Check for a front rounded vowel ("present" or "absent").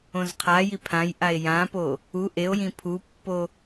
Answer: absent